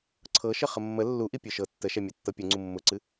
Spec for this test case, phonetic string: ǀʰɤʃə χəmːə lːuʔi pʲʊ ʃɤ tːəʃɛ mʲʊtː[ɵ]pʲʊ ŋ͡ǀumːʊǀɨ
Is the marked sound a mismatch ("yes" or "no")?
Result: yes